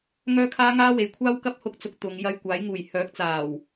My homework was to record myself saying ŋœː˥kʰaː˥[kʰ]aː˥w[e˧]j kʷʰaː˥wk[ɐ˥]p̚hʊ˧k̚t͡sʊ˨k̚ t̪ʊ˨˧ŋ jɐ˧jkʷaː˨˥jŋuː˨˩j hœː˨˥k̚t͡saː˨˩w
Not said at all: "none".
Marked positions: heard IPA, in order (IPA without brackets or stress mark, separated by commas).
ŋ, e˨˧, ɐ˥